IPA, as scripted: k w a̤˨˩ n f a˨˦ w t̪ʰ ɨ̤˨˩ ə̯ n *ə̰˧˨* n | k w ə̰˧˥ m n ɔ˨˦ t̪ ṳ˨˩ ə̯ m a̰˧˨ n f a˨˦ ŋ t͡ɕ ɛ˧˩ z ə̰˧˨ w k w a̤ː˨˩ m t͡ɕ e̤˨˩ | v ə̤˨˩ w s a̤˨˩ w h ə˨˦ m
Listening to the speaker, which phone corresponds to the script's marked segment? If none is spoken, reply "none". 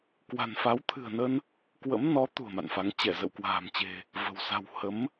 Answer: ə˧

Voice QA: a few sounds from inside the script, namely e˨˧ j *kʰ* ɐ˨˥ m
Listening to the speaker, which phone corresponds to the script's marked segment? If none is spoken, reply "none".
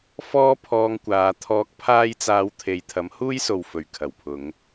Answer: t̪ʰ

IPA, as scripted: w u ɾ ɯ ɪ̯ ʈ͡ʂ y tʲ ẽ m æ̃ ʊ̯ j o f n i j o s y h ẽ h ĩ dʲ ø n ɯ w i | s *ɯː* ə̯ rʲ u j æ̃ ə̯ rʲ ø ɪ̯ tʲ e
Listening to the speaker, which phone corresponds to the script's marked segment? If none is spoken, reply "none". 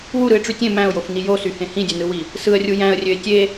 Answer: ɯ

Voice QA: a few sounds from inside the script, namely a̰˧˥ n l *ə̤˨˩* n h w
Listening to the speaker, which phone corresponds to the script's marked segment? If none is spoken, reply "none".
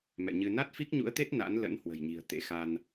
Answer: ə̰˧˥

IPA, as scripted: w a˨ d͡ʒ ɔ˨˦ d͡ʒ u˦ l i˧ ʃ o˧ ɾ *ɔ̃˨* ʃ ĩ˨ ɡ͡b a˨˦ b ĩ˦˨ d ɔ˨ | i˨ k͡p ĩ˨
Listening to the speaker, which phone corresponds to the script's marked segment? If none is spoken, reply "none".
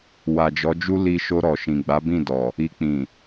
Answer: ɔ˨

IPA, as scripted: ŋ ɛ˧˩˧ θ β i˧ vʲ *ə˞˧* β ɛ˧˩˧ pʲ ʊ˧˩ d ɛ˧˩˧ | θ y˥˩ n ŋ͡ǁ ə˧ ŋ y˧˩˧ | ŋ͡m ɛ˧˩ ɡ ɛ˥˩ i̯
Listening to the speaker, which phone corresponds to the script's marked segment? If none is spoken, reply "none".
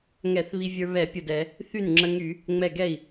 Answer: ə˞˧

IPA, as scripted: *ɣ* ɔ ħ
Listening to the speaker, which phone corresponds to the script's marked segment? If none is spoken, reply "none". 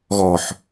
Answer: ɣ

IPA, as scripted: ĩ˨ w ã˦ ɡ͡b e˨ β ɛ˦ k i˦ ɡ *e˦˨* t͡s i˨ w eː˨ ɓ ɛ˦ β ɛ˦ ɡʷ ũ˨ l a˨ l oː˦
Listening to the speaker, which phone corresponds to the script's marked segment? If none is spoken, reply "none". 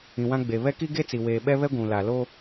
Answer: e˦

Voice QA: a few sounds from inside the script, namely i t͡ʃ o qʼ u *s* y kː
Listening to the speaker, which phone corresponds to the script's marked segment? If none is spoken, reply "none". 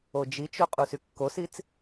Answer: s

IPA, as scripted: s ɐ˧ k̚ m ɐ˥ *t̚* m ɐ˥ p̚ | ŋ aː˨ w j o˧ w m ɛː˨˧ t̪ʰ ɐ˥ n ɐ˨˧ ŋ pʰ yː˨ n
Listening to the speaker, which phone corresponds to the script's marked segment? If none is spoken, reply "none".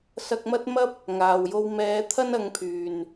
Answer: t̚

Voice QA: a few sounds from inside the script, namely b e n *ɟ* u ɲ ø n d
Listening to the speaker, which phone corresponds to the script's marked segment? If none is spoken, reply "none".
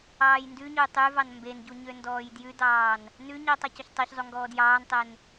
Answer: ɟ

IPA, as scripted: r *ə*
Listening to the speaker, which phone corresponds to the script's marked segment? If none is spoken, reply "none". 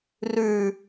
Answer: ʉ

